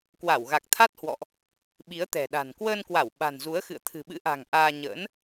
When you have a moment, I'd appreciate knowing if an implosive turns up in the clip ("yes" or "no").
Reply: yes